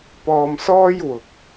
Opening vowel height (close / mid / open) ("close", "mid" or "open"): mid